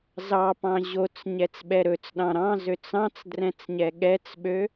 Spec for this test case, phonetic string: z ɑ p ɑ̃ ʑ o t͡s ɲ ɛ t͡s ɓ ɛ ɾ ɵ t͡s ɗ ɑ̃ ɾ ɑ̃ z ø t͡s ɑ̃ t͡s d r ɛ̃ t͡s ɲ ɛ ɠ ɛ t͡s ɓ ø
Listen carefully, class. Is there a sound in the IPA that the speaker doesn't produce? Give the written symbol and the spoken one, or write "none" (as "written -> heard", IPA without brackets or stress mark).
none